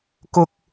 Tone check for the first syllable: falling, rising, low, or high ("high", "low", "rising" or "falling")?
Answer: low